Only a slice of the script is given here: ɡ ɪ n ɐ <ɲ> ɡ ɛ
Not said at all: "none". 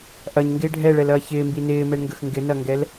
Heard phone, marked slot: ŋ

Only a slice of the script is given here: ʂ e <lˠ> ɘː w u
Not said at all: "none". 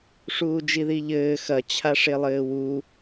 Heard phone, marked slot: lˠ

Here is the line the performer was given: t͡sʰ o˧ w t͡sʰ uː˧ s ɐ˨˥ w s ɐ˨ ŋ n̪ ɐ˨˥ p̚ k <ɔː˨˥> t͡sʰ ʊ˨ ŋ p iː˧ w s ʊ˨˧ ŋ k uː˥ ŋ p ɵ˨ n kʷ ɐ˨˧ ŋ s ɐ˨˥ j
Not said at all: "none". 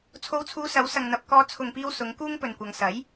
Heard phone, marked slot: ɔː˧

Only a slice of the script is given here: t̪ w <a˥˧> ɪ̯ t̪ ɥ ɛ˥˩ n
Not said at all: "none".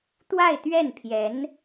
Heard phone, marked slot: a˥˧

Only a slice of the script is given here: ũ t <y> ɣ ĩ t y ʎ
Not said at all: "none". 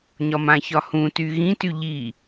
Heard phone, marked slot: y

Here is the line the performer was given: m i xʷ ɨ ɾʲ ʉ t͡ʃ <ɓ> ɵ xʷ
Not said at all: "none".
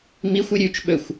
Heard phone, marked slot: ɓ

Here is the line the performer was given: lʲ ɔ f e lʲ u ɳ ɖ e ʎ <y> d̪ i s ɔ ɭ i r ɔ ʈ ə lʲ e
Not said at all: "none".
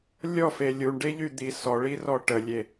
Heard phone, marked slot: y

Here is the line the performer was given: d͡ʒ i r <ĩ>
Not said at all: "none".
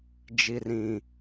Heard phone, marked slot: ĩ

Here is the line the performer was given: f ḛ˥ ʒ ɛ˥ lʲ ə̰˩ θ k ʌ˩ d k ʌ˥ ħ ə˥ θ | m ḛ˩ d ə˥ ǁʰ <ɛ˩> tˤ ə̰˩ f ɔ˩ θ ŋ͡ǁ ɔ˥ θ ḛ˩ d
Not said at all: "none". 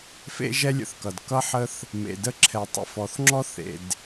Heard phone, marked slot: ɛ˩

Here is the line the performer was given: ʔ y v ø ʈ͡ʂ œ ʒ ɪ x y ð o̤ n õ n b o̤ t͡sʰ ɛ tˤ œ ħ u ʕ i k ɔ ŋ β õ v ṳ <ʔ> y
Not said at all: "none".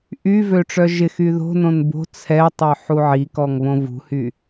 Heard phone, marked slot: h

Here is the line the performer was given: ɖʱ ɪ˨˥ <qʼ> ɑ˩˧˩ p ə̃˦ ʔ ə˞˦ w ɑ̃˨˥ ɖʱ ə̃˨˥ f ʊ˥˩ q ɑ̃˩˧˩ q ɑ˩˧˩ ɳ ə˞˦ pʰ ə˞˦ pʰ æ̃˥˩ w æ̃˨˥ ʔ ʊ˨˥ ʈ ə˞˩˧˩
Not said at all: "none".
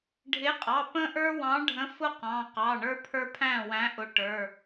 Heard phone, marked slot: qʼ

